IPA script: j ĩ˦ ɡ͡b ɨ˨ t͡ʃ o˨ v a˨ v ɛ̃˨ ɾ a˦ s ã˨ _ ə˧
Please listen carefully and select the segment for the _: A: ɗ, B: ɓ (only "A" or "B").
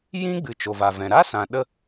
A